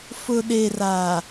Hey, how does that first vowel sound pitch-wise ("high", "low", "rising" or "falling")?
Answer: low